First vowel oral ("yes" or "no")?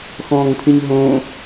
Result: no